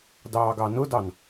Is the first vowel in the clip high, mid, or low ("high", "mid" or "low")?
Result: low